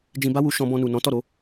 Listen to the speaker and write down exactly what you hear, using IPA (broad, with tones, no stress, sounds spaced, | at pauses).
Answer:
d͡ʒ ĩ˧ b a˦ w u˧ ʃ ɔ̃˧ b ɔ̃˧ n u˨ n ɔ̃˨˦ t ɔ˦˨ ɾ o˨˦